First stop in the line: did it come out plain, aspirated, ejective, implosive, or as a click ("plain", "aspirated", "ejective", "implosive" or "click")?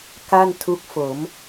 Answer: plain